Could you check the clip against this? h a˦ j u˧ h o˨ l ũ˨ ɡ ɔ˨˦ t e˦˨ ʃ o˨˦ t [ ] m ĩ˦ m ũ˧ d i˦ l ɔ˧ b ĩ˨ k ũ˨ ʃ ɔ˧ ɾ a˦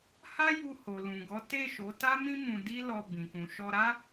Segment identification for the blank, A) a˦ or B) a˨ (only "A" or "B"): A